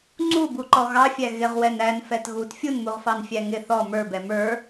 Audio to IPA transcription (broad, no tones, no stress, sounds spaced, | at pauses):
ŋ͡ǀ u b u ǃ ɔ ɣ ɑ fʲ æ ɣ ɪ ʁ w ɛ n æ n f ɛ t ɣ u t fʲ u n m u ʁ f ɑ n fʲ æ ŋ ɪ θ ɔ m ə˞ b ɛ m ə˞